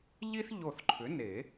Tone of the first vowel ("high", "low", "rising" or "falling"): high